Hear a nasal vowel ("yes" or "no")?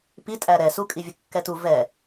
no